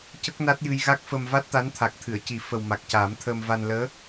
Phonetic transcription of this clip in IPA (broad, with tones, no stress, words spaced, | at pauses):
cə˦˥k̚na˦˥t̚jɨ˧j ɣa˦˥k̚fə˧m va˦˥t̚t̪a˧˥nt̪ʰa˨˩k̚t̪ʰɨ˨˩˨ə̯ ci˨˩˦ fə˨˩wma˨˩k̚ caː˨˩˦mt̪ʰəː˧mva˧n ləː˧˥